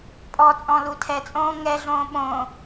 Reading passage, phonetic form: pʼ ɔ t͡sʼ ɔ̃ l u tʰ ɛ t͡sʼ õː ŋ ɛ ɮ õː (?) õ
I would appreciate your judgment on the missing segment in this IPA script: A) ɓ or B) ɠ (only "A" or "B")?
A